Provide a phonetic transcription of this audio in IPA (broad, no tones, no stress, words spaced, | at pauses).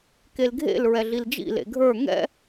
kelɡʱḛl ɹɛɮild͡ʒḭ lḛɡʱə˞ ŋɛ̰